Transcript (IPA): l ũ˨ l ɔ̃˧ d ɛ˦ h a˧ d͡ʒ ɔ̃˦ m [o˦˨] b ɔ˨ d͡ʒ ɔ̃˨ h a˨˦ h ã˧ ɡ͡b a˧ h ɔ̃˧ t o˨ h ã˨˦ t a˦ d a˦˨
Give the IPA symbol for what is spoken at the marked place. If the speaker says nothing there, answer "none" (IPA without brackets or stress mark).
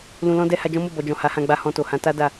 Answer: o˦˨